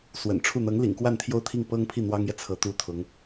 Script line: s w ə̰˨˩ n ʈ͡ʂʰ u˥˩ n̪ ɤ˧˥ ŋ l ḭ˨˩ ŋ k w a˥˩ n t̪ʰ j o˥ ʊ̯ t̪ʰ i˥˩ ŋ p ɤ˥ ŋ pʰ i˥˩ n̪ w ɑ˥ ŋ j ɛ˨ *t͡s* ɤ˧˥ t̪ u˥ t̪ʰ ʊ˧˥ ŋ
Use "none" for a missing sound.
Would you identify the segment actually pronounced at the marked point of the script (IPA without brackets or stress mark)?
t͡sʰ